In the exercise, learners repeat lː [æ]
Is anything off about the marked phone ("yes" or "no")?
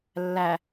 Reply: no